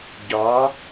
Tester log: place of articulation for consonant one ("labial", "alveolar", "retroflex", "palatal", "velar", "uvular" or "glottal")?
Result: palatal